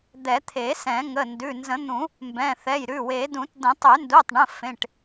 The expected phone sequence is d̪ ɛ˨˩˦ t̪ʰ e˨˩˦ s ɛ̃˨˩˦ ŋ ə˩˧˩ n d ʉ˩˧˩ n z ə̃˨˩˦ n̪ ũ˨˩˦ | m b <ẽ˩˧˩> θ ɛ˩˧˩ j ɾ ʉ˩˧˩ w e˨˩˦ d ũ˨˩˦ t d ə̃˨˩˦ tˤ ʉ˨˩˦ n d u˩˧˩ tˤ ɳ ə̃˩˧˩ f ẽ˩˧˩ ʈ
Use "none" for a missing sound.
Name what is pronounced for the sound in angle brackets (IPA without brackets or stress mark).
ɛ̃˩˧˩